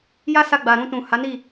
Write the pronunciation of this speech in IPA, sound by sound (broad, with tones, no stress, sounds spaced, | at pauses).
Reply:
j a˦ s a˧ ɡ͡b a˨ ɾ ũ˧ t ũ˨ h a˨˦ n i˦˨